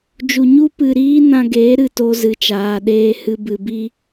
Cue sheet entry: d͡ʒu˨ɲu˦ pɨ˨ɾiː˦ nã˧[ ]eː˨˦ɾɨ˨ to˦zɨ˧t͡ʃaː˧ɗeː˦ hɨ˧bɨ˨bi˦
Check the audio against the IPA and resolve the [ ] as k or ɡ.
ɡ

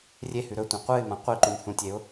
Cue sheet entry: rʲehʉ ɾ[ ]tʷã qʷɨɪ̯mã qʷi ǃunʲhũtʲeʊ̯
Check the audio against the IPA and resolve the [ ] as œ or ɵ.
ɵ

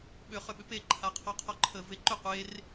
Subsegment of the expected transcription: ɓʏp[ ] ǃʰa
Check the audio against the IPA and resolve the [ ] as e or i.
e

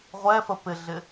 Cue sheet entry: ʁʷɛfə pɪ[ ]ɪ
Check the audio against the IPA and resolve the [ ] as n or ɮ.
ɮ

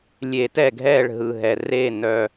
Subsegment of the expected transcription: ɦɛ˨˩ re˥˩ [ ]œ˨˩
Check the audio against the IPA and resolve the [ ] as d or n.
n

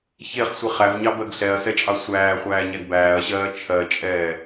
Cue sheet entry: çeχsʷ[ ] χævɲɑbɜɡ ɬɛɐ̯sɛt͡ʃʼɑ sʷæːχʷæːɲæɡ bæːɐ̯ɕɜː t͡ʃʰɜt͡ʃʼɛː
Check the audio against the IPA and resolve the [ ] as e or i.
i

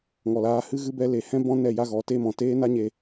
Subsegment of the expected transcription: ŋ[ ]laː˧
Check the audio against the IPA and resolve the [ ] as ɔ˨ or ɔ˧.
ɔ˨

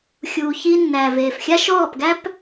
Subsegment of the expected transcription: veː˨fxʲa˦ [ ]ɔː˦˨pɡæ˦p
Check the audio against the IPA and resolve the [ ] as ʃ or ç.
ʃ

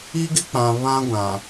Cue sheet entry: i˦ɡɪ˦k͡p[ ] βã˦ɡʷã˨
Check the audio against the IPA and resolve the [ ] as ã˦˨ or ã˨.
ã˨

